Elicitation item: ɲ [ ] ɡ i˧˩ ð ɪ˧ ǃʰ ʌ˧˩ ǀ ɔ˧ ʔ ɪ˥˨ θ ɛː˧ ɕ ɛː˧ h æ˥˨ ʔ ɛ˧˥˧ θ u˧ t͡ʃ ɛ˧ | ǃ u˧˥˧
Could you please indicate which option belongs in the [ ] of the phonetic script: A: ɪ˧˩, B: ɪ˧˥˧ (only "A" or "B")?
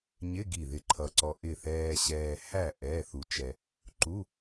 B